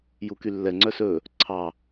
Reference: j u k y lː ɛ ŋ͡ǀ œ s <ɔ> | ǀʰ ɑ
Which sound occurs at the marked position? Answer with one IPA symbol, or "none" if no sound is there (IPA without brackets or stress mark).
ɵ